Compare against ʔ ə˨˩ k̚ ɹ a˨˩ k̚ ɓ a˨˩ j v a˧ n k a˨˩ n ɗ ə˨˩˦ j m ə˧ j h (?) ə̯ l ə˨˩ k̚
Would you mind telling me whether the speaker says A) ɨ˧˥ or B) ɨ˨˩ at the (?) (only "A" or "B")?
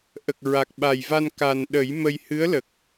A